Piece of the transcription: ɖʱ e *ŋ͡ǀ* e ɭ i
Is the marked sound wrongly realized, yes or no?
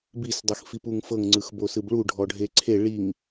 yes